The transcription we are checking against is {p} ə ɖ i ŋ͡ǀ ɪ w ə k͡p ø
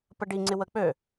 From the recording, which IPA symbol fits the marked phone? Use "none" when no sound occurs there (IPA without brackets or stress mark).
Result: p